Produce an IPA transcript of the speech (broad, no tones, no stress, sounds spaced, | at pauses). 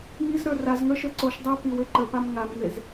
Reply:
ŋ i z ɾ ə˞ r a z ŋ ə˞ ʃ ə˞ ǀ o ʃ dˤ a p i w e ǃ ə p a m ŋ a m ŋ e z